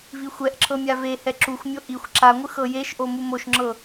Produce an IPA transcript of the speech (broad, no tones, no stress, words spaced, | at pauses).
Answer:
vixʷɛʔǁʰɤ mʲavehɛ ǁuxʷmʲo ʔixʷ ǁaŋʷɯ xɤjeʃʔo mumoʃŋ͡ǁɤ